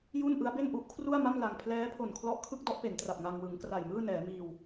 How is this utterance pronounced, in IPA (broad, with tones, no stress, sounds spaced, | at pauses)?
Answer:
j u˥˩ n ʔ ɯ˦˥ a̯ b e˥˩ n ʔ u˦˥ ʔ kʰ r u˥˩ a̯ m a˥˩ m l a˧ ŋ pʰ l ɛː˦˥ pʰ o˨˩ n kʰ l ɔ˦˥ ʔ kʰ ɯ˥˩ k̚ d ɔ˦˥ ʔ p e˩˦ n t r a˨˩ p̚ ŋ a˧ ŋ w ɯ˩˦ ŋ k r a˨˩ j m ɯː˥˩ n ɛː˩˦ m iː˧ w